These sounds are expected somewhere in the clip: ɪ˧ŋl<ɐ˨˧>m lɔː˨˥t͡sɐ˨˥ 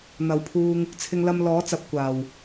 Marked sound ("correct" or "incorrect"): incorrect